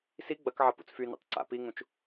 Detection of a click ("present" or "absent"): present